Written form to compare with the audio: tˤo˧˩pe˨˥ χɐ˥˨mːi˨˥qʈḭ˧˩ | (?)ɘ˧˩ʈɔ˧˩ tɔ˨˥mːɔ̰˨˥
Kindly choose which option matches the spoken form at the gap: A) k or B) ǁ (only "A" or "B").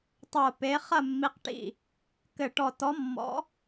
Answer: A